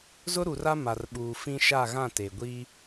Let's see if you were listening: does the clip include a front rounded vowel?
no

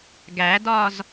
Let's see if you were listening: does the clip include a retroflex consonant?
no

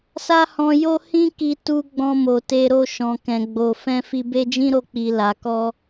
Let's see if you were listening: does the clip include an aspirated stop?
no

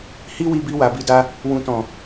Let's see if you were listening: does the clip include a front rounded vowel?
no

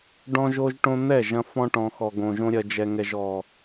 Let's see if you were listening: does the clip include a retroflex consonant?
yes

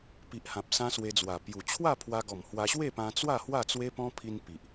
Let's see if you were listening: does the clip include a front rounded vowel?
no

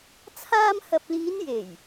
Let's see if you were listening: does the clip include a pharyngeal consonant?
no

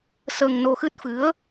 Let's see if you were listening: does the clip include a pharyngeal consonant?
no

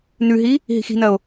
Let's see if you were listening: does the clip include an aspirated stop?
no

